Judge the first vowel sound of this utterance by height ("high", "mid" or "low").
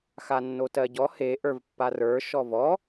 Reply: low